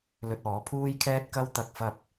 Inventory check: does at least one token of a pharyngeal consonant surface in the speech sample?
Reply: no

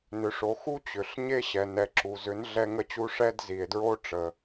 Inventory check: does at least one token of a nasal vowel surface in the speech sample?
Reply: no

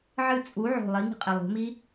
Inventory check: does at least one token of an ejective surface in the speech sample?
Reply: yes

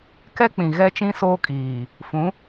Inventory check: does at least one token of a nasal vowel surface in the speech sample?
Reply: yes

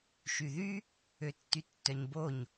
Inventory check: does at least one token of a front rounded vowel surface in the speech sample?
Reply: yes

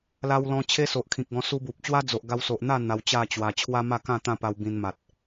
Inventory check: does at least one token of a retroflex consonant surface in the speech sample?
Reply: no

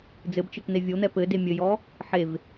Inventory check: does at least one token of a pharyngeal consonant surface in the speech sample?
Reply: yes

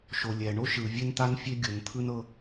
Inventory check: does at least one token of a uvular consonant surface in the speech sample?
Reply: no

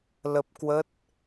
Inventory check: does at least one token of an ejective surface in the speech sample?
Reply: no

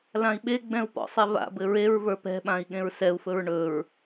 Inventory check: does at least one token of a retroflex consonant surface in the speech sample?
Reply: yes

